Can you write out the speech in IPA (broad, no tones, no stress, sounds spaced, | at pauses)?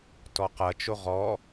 t ɔ q ɐ t͡ʃ o ʁ ɔ